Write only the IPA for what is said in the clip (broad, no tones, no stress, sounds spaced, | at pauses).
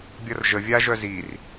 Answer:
bʲ ʌ r ʒ ə vʲ a ʒ œ z i r